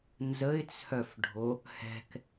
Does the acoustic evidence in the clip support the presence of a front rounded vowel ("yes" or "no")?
yes